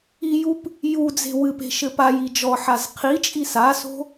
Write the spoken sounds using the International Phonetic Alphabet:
ijup | jud͡ze̤ wɨpe̤ ʃɘpaji d͡ʒɔħaz qʰit͡ʃʼi saso̤

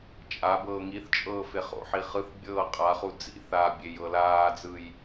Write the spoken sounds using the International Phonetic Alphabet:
t͡ʃʼabɤː ŋiθt͡ʃʼɤː feχo̰ħi χɯθ bʲɤːqʼaχu d͡zḭ θabʲej ɤlaːd͡zɯj

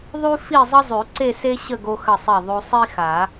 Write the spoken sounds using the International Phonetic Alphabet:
ðˤʉ˥ fi˥˧zˤə˥ zˤʉ˨˩˦ǀe˥˧ se˥ɕə˥˧ ɡo˧xə˧˩sˤe˧˩ ðˤʉ˧sˤi˥xa˨˩˦

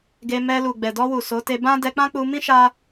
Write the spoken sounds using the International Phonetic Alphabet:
ɡe˧mɛ˧ lu˨ɡ͡bɛ˨dɔ˧wu˨ so˨˦te˧bã˦ dɛ˧k͡pã˦k͡pu˧mĩ˦ ʃa˦

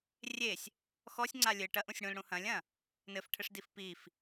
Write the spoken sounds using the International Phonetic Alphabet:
rʲesʲ | xɔsʲŋ͡ǀa lʲɘ ʈɐʔũsʲ ɽũlɽũ hɐ̃lʲɐ̃ | nɘfʈʰɘʂdif pif

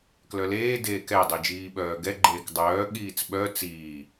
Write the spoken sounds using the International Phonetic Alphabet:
klœleː deːkɛ dˤid͡ʒiːɓœːɡɛ ɡ͡ǃeːkdˤœː ɠiːt͡sɓœ t͡siː

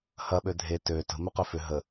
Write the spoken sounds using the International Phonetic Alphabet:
hɐɓø dʱe tø tə̤mʏqø fʏ ɦə

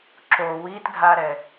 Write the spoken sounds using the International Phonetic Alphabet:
ǁo witɡʱaɾɛ

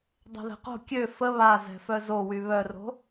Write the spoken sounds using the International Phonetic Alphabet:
dˤɛ̤ðɛ̤qo̤ kʲø fə βazɛ̤fœ zowy βœro̤

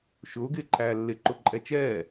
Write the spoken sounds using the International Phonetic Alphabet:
ʃʊːɡɪː ǃʰæːlːɪ ǃʊǃʼɛt͡ʃɛː

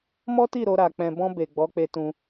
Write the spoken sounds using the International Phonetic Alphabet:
mɔ˦ti˦˨ ɾo˧ɾa˨ k͡pɛ̃˨bɔ̃˧ be˨ɡ͡bɔ˨˦k͡pe˧tũ˧

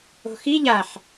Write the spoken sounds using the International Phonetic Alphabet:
o̤xi ʎaħ

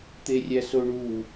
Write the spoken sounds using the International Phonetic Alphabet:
t̪erʲæsoɳu

